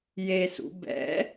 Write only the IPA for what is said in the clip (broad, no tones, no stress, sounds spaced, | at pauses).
j e s ṵ b ɛ̰